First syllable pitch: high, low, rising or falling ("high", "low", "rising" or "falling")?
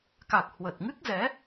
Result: low